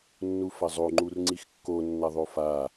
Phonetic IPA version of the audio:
nː u f ɐ zˤ o ŋ͡ǃ u r ŋ͡ǀ i x kː o nː ɐ ðˤ o f a

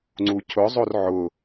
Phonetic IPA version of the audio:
ŋ͡ǀ u cʰ ʊ zˤ o r ʕ ʊ

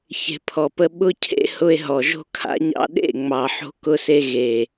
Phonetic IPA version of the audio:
ç e̤˨ pʰ ɔ˨ p ə˧ ɓ ʊ˧ cʰ ḛ˧ h ʊ˧ e̯ ɦ ɔ˨ ʒ o̤˦ kʰ a̰˧ ɲ ɑ̰˧ ɗ ḛ˦˨ ŋ͡m ɑ˨ ħ o̤˧ k ʊ˧ s e˧ ɣ e˨

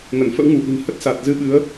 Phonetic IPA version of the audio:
ŋ ə˧˩ n f ə̰˧˥ w ŋ u˧˩ ʔ i̤˨˩ n h ə˦˥ t̚ s a˨˩ t̚ z ɨ˧ ɓ ɨ˨˦ ə̯

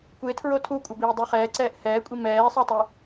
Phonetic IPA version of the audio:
kʷ e tʰ ɹ o tʰ u kʷʼ ʌ b iː dˤ i χ ɛː ǀ ɛː ʔ h ɛː kʷʼ i m ɛː sˤ ɯ tˤ i

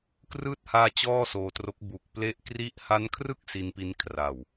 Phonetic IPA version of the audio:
k r ɯː˦˥ t̚ h aː˧ t͡ɕ ɔː˥˩ s oː˧ t r o˦˥ k̚ b u˨˩ k̚ p l e˦˥ ʔ k r i˥˩ ʔ h a˦˥ n kʰ r ɯ˥˩ k̚ s i˧ n p i˧ n kʰ r a˨˩ w

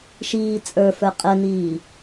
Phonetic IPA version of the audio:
ʃ iː t͡sʼ ə˞ f ə˞ qʼ ə n iː

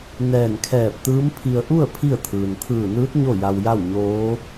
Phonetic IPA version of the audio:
n ɛː˧˩ n kʰ ɛː˧˩ p̚ t̪ ɯː˧˥ m pʰ i˧ ə̯ ʔ u˥˨ ə̯ pʰ i˥˨ ə̯ t̪ʰ ɯː˩ n t̪ʰ ɯː˧˩ n ɯː˧˥ t̚ ɲ o˥˨ j a˧ w j a˥˨ w ɲ oː˧˥

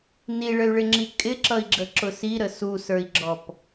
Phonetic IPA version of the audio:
n i ɭ ə y̯ ɭ ɪ ŋ͡ǁ i kʼ ɪ ǁ ʌ i̯ ɡ͡ǁ ə ǁ ʊ s i ɾ ə s u s ə˞ i̯ ɡ͡ǁ ɔ p

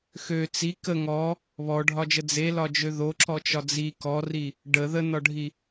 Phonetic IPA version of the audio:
x ø t͡s i k ə ŋ ɔ | β ɔ ɖʱ ɒ d͡ʒ ə d͡z e l ɒ d͡ʒ ø ð o ǁ ɔ t͡ʃ ɒ d͡z i k ɔ r i | ɖ ə ð ə n ɒ ɖʱ i

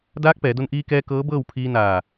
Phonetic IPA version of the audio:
d aː˧˥ k̚ p ɛː˩˧ d o˧ n ʔ iː˧ k ɛː˧ k ɤː˧˥ b ɤː˥˨ w pʰ iː˧ n aː˧˩

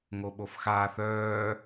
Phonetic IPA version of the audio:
ŋ o ɓ o f x aː θ œː

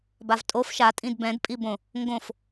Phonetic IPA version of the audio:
b a v tʼ o f ʃ a tʼ ĩ d b ɛ̃ d pʼ i b õ | ŋ ɡ õ f

